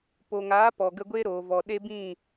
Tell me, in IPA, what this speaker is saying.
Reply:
po˨ŋaː˨˦ pɔ˨ɡə˧ɡʷe˦ ɾoː˨vɔ˨ ɗe˦bĩ˦˨

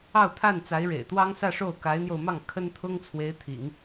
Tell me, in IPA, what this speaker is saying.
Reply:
ɑ˥˧ʊ̯t̪ʰa˥˩nt͡sa˧˥ɪ̯ ɻḛ˨˩ɪ̯t̪wɑ˥ŋsä˥˧ʂo˥˩ʊ̯ ka˧˥ɪ̯n̪jo˧ʊ̯mɑ˥˩ŋ kʰə˥nt̪ʰʊ˥ŋ t͡sʰwe˧˥ɪ̯t̪ʰḭ˨˩˦ŋ

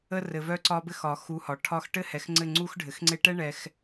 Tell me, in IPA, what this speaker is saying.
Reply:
ə˧rɘ˨ vœ˧ǀɒ˧bɘ˧xɒ˨ xu˨˦hɒ˨ ʈʰɒ˧x ʈɘ˦hɛ˨xŋ͡ǀɘ˦˨ ŋ͡ǀu˧xɖʱɘ˨xŋ͡ǀe˧ʈɛ˦ ɳɛ˧x

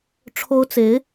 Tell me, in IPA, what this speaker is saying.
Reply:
ʈ͡ʂʰo˥ʊ̯t͡se˧˥ɪ̯

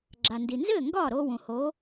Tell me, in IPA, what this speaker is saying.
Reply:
ɡ͡ǁa˩ndi˩nzɘː˥˩ ŋɡɒː˥˩ɾoː˧wũ˩ ho˩˥

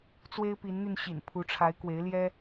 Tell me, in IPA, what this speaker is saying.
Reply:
t͡swe˦ɪ̯pi˨˦nn̪y˧n ɕḭ˨˩npʰu˨˦ʈ͡ʂʰa˨˦ɪ̯ kwe˨˦ɪ̯ljɛ˦

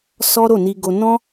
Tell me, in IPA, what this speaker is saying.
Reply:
sɔ˦ɾo˦˨ni˧ ɡo˧ nɔ̃˦

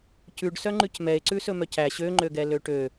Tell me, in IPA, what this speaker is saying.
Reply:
cʉɖsœ ŋ͡ǃʉcmɛe̯ǀʉ sɵmœcæ ɕøŋ͡ǃøɡɛ løʈø

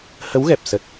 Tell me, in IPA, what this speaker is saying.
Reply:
hə˨˦wɣɛ˨˩p̚sə˨˩t̚

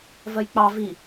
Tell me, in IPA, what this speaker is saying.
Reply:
vɜjk͡pɑ vi

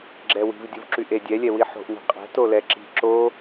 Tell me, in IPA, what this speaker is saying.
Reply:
ɡ͡ǁɛwi̤v dʲuvǁyʔe dʲɛlʲɛ wiħo̤ʔni̤ qʼɛ̤tolɛ ǁi̤ ǁo

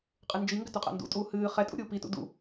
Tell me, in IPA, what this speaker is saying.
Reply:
qʼɨnd͡ʒiŋɡʏ tuqʼa̰ndṵtʼuː hɨː χɛtʼṵ ɾʲuːpitṵ dṵ

